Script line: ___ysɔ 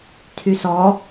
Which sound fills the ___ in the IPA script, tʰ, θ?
tʰ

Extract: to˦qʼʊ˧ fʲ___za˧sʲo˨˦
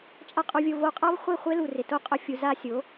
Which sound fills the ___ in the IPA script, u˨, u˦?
u˨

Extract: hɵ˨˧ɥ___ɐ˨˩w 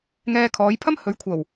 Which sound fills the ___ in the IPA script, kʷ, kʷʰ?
kʷʰ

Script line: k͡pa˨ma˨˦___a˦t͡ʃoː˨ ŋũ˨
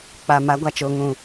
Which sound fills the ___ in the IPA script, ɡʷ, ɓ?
ɡʷ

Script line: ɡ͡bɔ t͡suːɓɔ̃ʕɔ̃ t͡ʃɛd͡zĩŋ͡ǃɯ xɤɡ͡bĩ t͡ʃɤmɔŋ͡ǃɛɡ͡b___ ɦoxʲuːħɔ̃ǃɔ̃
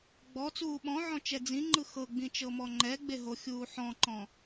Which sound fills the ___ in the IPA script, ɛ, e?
e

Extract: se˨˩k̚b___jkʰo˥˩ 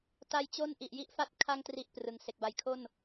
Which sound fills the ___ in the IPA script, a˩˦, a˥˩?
a˩˦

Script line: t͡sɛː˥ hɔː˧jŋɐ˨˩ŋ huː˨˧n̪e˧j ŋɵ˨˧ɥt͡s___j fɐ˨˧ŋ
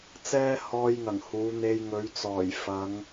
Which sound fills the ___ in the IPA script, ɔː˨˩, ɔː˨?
ɔː˨˩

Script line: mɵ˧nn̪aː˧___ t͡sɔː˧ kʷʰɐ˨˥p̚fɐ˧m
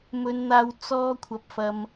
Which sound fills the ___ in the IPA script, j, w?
w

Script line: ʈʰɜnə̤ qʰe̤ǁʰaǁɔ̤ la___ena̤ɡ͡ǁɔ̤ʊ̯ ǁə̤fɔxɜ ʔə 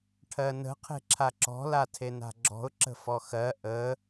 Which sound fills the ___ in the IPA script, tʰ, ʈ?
tʰ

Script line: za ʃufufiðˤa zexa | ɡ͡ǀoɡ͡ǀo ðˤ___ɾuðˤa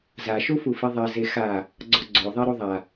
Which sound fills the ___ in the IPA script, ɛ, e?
ɛ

